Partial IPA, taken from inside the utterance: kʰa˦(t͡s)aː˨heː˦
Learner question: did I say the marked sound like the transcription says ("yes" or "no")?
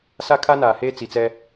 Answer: no